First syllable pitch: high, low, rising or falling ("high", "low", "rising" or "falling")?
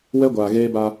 high